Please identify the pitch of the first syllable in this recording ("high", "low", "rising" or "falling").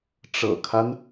low